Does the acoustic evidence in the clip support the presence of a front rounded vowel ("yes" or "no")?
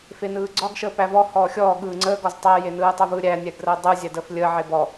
no